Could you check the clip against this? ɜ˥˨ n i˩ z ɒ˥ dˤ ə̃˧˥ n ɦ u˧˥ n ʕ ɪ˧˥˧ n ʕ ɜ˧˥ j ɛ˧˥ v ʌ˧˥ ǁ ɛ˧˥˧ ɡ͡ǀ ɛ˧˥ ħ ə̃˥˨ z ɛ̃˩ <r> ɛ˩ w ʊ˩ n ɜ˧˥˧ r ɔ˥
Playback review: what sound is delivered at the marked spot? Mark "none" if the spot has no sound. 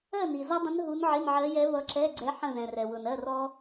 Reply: r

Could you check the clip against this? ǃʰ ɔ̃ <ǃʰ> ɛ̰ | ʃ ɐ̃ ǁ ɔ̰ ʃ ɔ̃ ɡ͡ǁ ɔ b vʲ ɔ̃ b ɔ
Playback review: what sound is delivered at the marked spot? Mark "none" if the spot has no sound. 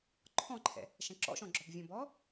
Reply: ǃʰ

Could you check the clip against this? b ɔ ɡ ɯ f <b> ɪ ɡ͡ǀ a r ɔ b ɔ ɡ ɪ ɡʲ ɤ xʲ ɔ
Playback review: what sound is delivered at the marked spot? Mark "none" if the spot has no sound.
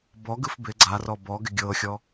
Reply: b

